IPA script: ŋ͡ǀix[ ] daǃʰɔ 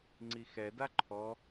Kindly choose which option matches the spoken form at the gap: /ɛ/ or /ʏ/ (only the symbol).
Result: ɛ